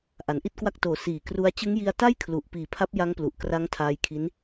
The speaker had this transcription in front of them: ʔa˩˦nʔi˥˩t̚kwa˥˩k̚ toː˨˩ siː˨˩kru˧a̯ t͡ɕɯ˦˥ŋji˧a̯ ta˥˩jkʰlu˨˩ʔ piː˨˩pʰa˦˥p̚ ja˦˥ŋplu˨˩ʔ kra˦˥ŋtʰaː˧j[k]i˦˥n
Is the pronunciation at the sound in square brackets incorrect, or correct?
incorrect